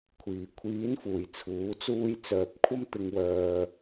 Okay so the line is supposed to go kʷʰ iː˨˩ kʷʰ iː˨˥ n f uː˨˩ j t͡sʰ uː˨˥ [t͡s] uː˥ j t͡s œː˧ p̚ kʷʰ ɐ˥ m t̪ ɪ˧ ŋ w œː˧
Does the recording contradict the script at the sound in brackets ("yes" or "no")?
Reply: no